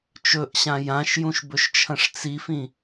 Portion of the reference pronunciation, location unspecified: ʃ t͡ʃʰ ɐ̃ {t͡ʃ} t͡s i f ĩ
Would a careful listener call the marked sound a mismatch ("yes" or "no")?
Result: yes